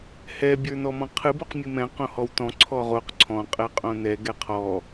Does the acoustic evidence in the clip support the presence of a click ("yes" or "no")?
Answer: yes